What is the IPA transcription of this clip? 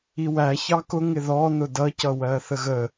i w æ ç ɑ k ʊ ŋ ɪ ð ɔ n ʊ d ʌ c ʌ w ɜ θ ə ɣ ə

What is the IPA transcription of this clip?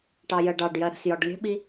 ʈ ɑ j ɜ ɖ ɑ ɖ j ɜ ɾ ə̤ s j ɒ ɖ lʲ ə̤ ɓ i

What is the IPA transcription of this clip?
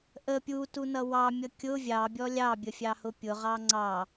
ʔ ə pʲ u t u n ʌ w ɑ mʲ ʌ kʲ ʊ vʲ ɑ bʲ ɔ lʲ ɑ bʲ ə fʲ ɑ h ʊ pʲ ʊ ʁ ɑ ŋ͡ǀ ɑ

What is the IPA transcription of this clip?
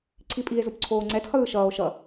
ǀʰ i pʼ i e̯ z o p ǀʰ oː ŋ͡ǀ ɛ t χ ɯː ʃ ʌː o̯ ʃ ʌ

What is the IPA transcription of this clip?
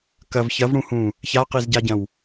k ɐ v ç ɐ v ɽ ũ h ũ | ç a q i z ɟ a ɟ ɐ̃ w

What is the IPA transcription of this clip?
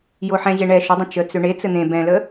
j o ħ ɛ̃ ʑ e ɳ ɛ ʃ ʏ dˤ ə̃ t͡ʃ ə t͡s ʏ ɳ e t͡s ɘ n̪ ẽ b ɛ̃ l ə

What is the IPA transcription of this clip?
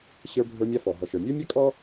ɕ ə˞˧ bʱ ə˞˧ mʲ a˧ f ɔ˩ ɦ ɔ˩ ʃ ə˞˩ mʲ ə˞˥ mʲ a˥ kʼ ɔ˥

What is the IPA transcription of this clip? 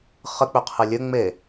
χ ə k͡p ʏ qʰ ɨ lʲ ɘ ŋ͡m e

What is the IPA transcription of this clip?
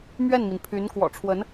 m ɥ ɛ˥˩ n m i˩ n pʰ y˧˥ n k w ɔ̰˨˩ ʈ͡ʂʰ w ə˧˥ n

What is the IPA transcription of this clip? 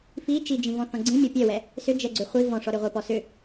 f i t͡ʃ i d͡ʒ ĩ v ɔ̃ θ ɔ̃ ɡ͡ǀ ĩ mʲ ɔ pʲ ɛ w ɛ | s ʏ d͡ʒ ɛ ɡ͡ǀ ʏ χʷ i v ɔ̃ ʂ ɔ ɾ ʏ ʁʷ ə˞ p ɔ s ʏ

